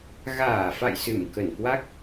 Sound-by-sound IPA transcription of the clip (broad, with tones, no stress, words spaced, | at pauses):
ɣaː˧˩fa̰˧˨j sɨ˧˩m kə˧˩nkwa˦˥k̚